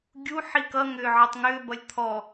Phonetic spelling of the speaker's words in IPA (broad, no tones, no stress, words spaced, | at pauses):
ɡʲu ħikʌŋʏː ʕʌtˤŋʏːbʌlʲ t̪ʰɔ